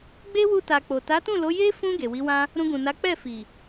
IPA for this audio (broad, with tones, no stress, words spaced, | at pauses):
ɡ͡be˦wu˧ta˨k͡po˨ ta˨˦tũ˦˨lo˨˦ je˦ fũ˧ ɡe˨wi˨˦wã˦ | ɾũ˧ɡũ˨na˨˦ k͡pɛ˦˨fi˨